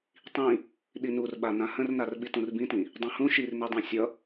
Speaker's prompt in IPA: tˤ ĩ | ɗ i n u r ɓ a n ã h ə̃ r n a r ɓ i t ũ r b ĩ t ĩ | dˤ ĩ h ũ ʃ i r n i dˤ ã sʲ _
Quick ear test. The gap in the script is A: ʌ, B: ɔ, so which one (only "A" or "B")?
A